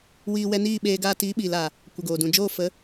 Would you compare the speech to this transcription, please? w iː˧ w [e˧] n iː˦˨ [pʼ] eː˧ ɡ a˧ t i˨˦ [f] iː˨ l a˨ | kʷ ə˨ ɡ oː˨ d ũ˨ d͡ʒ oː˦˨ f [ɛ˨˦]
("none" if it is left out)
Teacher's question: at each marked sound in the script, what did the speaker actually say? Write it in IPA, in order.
ɛ˧, ɓ, ɓ, ə˨˦

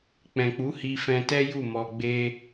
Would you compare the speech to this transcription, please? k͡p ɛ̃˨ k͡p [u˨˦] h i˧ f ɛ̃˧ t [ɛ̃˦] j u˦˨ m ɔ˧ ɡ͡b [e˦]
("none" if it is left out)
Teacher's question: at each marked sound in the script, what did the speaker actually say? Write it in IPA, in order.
u˨˦, ɛ˦, e˦

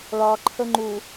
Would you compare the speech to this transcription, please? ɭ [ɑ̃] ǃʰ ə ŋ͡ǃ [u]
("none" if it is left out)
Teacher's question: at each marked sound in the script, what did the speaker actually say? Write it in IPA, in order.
ɑ, u

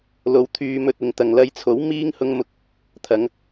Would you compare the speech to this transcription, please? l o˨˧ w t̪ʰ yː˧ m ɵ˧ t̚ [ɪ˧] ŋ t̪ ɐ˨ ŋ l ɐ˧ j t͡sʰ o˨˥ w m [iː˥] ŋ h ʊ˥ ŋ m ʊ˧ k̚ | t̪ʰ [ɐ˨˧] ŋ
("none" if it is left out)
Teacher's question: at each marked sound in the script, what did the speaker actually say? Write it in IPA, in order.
ɪ˨, iː˥, ɐ˨˧

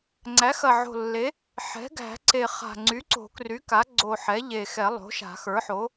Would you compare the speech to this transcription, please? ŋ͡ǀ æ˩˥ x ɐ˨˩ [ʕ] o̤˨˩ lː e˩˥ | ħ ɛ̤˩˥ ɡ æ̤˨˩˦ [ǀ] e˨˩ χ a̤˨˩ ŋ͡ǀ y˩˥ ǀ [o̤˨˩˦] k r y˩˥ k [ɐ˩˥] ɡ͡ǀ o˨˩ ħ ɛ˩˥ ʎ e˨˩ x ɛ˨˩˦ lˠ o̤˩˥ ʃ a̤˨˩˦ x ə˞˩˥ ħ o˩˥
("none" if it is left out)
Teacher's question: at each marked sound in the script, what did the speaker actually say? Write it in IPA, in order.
ʕ, ǀ, o̤˨˩˦, a˩˥

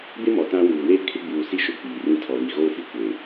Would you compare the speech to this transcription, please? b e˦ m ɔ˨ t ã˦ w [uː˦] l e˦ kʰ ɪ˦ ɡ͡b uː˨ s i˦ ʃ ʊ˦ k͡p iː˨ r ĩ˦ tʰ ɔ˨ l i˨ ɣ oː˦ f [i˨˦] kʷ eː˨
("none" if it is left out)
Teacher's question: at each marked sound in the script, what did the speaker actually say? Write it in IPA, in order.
uː˨, i˦

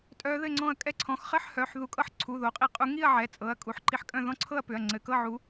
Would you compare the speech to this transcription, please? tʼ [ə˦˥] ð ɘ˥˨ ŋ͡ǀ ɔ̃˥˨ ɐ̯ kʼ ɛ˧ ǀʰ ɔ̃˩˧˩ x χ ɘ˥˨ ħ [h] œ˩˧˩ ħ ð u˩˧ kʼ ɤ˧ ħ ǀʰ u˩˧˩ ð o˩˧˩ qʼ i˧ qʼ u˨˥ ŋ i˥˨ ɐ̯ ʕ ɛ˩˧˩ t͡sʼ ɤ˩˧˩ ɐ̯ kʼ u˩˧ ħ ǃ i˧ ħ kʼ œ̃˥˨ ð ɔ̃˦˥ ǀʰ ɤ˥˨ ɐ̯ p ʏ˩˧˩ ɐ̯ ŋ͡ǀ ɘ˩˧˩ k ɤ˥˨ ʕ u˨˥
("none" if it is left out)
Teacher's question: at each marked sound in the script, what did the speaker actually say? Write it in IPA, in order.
œ˦˥, h

